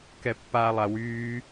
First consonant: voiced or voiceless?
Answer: voiceless